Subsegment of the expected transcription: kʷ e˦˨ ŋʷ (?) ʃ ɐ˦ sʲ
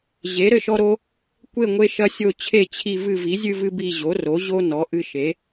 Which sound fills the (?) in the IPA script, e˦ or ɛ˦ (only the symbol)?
e˦